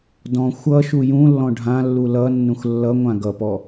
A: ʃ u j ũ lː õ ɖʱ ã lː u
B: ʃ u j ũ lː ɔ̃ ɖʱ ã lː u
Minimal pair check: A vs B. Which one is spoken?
B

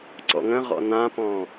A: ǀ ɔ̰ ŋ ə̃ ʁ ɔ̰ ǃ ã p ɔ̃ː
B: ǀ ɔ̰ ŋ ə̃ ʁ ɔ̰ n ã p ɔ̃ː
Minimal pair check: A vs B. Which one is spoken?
B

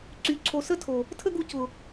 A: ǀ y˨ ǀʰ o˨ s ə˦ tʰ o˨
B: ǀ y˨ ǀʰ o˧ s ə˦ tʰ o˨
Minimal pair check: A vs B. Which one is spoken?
A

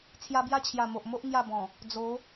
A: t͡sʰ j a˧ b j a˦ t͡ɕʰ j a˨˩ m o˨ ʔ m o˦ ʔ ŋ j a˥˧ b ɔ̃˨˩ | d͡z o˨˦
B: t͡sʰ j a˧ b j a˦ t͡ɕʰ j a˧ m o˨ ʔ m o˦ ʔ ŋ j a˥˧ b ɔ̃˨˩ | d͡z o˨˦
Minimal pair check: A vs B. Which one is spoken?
A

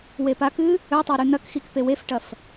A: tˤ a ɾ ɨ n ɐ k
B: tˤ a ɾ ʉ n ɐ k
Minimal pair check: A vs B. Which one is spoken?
B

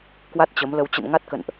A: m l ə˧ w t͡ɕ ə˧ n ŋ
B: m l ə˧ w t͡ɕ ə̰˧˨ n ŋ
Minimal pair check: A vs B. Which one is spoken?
B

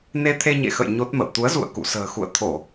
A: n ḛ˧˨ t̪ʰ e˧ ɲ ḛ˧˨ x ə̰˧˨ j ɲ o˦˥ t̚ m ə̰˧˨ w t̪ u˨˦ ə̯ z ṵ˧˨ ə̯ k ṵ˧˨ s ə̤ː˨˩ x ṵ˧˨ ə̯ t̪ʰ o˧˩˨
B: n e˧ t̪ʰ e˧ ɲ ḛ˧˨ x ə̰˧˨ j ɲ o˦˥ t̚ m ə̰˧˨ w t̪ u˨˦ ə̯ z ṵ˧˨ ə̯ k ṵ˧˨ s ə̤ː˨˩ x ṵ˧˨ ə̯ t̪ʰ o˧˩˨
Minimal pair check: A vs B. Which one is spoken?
B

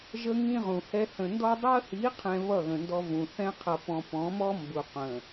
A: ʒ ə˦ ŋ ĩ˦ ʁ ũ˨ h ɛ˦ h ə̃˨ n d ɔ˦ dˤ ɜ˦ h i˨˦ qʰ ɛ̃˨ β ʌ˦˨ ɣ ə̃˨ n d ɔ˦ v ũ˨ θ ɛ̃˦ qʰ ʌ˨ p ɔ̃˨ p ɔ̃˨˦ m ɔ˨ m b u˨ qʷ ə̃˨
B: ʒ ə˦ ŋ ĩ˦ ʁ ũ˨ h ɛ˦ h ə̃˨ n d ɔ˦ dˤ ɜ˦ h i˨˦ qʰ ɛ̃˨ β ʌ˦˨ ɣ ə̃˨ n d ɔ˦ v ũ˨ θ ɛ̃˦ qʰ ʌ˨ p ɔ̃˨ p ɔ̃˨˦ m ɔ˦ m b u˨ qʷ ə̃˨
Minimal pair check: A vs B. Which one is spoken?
B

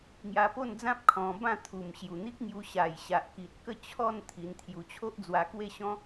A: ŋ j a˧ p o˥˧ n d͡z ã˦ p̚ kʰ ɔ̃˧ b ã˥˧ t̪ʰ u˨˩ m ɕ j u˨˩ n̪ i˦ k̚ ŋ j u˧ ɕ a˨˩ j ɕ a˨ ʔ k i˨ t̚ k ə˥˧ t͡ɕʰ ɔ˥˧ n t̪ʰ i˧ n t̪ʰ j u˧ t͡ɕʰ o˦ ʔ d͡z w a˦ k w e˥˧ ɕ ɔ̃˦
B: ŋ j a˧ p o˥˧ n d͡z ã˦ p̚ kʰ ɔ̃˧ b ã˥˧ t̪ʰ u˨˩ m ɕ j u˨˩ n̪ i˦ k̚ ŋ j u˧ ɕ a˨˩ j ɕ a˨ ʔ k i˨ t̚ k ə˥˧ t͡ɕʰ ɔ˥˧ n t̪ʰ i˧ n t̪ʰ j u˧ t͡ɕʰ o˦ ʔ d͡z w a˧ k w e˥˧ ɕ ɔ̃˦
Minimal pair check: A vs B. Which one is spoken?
B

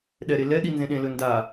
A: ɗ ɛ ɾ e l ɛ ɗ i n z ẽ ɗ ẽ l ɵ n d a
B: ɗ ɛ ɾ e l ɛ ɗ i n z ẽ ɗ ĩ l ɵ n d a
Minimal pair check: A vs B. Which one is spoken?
A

